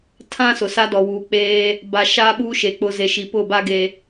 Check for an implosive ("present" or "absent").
present